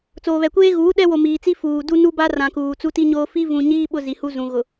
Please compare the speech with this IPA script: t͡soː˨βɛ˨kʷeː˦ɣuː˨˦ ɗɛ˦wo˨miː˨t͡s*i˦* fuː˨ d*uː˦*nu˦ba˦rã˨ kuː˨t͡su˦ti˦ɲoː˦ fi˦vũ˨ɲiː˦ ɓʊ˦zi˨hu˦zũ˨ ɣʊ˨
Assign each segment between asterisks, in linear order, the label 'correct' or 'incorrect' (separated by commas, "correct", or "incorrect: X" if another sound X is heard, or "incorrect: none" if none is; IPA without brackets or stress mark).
correct, incorrect: u˦